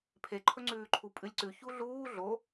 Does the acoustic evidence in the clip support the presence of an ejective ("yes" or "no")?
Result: yes